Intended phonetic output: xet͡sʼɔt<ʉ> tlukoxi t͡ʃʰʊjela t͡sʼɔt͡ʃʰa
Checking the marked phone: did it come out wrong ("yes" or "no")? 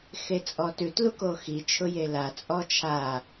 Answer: no